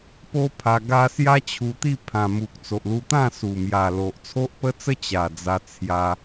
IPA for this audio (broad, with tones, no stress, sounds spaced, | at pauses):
p o˦ pʰ a˧ ɡ a˦ s j a˦ t͡ɕʰ u˧ t̪ i˥˧ pʰ ã˨˩ m u˨ k̚ t͡s o˨ ʔ l u˧ t̪ ã˥˧ s u˨˩ m j a˨˩ l o˨ ʔ t͡sʰ o˦ ʔ p ə˦ t͡s ə˦ t͡ɕ a˨˩ d͡z a˧ t͡sʰ j a˧